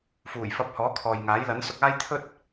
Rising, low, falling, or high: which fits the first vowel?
low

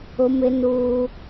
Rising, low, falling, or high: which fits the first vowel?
high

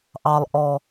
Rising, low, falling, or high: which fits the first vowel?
low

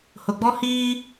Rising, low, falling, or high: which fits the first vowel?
low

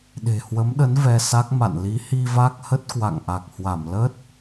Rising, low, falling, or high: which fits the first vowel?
low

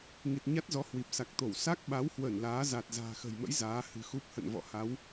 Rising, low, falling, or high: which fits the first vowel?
low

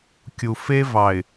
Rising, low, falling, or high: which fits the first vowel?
low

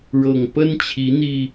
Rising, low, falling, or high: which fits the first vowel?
low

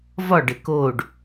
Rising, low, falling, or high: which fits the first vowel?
falling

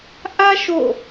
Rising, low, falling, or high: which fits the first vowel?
high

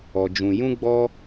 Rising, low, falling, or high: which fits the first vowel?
low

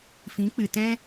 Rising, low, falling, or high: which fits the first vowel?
rising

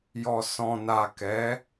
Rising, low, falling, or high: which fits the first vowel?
low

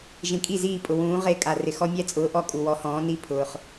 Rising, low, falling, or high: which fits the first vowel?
low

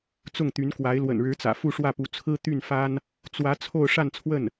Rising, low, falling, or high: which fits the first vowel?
falling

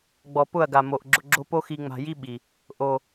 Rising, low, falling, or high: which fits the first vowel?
low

